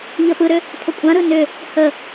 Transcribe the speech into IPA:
ʎ ə p ɯ ɾ ʏ | pʰ ə kʷʼ ã ɾ ɯ n ʏ | h ə

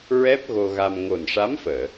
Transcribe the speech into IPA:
ɹ ɛ˦˥ p̚ ɣ o˧ ɣ a˧ m ŋ o˨˩ n ʂ a˧˥ m f əː˨˩˨

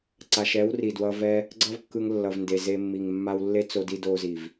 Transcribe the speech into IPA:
ǀ a˨ ʃ ɛ˨˦ w r i˨ d w ʌ˧ v ɛ˦ | ɡ͡ǀ ʌ˦ v kː ɯ˧ ŋ lː ʌ˨ v n d e˨ z e˧ mː i˨ ŋ mː a˧ w lː e˦ t͡s o˧ d i˧ d o˧ z i˨ v

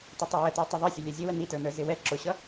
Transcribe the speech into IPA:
t ʌ tˤ u w ə t ə˞ tˤ ə ðˤ ʌ sʲ ə lʲ ɛ zʲ ə w ə n i t ə˞ n ə˞ z ɪ w ɛ ǁ ʊ ɕ ʌ

